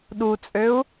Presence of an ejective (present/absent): present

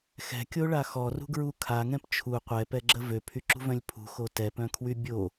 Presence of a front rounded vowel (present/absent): present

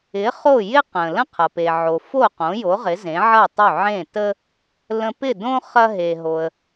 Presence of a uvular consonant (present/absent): present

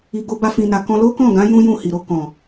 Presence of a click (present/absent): absent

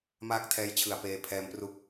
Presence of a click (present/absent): absent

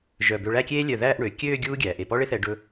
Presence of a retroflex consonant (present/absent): present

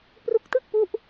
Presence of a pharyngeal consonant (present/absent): absent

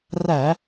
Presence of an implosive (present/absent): absent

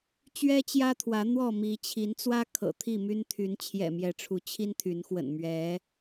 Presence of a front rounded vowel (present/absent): present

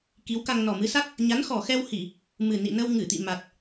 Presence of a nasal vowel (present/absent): absent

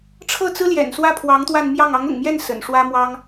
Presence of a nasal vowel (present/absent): absent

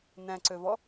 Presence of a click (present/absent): present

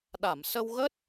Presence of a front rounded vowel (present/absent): absent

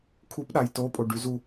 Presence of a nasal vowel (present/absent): absent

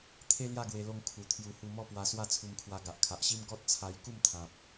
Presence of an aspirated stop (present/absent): present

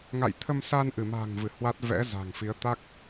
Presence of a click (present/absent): absent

